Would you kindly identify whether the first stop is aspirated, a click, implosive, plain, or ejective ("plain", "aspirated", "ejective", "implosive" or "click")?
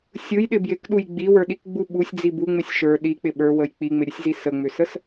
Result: implosive